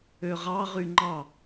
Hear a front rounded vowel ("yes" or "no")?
yes